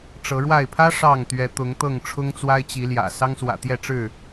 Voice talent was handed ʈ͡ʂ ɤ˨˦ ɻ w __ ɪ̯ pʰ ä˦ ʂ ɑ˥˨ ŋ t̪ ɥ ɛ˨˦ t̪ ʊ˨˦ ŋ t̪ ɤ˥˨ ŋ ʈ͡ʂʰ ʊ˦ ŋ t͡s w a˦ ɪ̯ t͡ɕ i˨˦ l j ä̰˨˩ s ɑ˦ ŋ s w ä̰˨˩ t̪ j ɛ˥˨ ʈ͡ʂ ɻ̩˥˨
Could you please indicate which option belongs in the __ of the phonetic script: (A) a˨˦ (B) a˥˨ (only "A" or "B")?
B